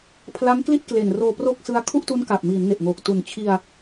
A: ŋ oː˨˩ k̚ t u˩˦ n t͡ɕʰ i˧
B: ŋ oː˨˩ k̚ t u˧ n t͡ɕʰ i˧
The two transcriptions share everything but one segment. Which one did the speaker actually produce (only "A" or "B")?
A